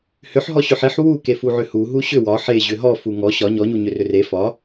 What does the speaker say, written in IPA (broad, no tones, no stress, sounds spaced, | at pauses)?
h ʏ ħ ɦ ɔ ɕ ʏ ħ e ħ w u k e f u ʕ ʏ h u ɦ u ɕ ʏ w ɒ ħ e ʑ ʏ ɦ ɔ f u ŋ ɔ ɕ ɒ ɲ ɔ ɲ u ɲ ʏ r ʏ r e f ɒ